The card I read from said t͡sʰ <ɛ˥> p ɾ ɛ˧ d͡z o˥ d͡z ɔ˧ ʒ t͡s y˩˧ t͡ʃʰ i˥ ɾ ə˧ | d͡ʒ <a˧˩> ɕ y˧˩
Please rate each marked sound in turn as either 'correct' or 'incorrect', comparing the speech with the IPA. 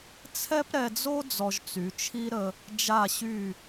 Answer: correct, correct

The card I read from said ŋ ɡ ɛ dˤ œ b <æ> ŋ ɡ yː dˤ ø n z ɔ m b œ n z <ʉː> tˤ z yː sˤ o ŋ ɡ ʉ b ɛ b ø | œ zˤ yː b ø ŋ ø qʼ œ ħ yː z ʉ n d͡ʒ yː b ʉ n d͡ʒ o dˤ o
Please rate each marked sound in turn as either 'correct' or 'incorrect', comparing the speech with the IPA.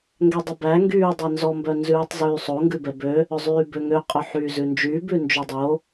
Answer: correct, correct

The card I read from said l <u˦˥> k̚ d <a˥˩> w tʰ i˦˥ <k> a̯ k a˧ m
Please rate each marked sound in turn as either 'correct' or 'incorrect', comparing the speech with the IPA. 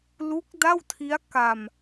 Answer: correct, correct, incorrect: none

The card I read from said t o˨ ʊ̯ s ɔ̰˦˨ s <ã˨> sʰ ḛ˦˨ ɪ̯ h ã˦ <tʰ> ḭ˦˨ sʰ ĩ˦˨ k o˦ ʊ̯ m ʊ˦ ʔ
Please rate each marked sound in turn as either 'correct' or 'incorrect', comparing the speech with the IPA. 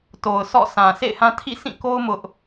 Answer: correct, correct

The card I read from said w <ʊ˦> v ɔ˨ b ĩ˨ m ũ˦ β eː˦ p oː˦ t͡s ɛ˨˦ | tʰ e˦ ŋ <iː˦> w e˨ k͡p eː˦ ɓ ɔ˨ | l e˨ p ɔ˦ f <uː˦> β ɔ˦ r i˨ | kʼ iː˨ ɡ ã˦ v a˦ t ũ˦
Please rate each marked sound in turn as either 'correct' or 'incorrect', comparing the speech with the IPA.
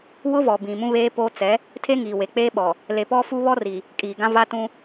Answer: correct, incorrect: iː˨, incorrect: u˦

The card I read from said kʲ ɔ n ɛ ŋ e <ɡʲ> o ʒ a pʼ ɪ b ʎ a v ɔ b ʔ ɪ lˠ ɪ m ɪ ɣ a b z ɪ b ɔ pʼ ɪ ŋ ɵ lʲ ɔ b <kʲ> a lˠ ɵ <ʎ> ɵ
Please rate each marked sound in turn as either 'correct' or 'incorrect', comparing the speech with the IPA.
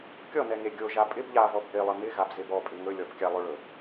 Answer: correct, correct, incorrect: ɭ

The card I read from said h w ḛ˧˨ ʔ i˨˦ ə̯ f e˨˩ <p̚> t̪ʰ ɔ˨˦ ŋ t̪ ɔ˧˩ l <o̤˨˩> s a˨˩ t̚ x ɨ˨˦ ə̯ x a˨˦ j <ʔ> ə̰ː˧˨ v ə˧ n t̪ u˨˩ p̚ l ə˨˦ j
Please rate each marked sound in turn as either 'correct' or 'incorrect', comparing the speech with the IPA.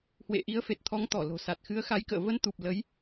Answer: incorrect: t̚, correct, incorrect: k

